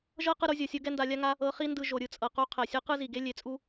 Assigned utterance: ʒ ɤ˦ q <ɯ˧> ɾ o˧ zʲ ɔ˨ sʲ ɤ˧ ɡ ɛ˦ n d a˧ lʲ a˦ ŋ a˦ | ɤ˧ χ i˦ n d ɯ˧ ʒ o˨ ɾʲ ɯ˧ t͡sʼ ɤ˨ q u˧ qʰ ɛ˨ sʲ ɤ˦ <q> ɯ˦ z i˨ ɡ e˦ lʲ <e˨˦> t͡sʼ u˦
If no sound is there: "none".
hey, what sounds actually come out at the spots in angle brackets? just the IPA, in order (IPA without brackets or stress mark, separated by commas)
ɯ˧, q, e˨˦